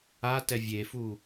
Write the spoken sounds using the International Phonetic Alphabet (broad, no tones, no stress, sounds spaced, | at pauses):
a t ɛ vʲ e f u